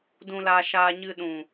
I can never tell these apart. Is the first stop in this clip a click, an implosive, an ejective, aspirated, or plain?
plain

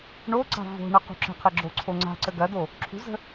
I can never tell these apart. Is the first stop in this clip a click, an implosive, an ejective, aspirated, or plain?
click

